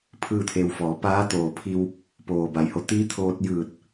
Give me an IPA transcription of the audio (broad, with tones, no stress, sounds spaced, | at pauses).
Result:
pʰ ɯː˥˨ t̪ʰ e˧ w f ɔː˩˧ p aː˧˥ t̪ oː˧˩ pʰ i˧ w | p oː˩ b a˩˧ j h o˧˩ t̪ iː˧˥ t̪ʰ oː˧ t̚ j ɯː˧˩ t̚